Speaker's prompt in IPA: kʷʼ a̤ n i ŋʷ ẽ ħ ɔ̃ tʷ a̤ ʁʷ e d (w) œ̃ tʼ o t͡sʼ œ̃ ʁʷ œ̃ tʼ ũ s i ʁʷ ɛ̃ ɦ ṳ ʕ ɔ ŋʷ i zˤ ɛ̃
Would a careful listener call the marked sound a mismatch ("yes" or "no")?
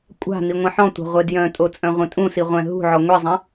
yes